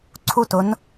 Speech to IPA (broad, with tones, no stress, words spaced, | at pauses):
ǀʰu˥˧t ʊ˦˥n